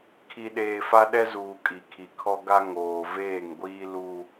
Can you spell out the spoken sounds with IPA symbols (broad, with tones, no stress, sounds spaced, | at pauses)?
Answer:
kʰ i˨ ɗ eː˨ f a˦ ɗ ɛ˦ z uː˨ kʼ i˨ kʰ i˨ kʰ ɔ˦ ɡ a˦ ŋ oː˨ v eː˦˨ ŋ ɡʷ iː˦ l u˦